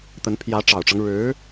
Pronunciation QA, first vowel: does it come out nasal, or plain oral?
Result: oral